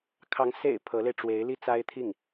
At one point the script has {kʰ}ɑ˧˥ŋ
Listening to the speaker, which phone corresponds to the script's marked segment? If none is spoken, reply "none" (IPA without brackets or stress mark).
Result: kʰ